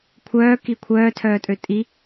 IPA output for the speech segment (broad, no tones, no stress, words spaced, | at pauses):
kʷʰœː kikʷʰœː tʰœːtʼøtʼi